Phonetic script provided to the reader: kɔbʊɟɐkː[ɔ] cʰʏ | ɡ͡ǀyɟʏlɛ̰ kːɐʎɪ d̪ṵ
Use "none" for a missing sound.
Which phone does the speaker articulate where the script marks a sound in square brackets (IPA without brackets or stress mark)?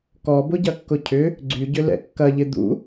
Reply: ʊ